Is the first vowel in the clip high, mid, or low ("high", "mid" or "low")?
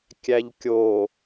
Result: low